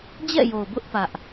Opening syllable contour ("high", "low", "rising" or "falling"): falling